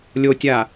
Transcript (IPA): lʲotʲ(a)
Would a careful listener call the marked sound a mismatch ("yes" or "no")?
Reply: no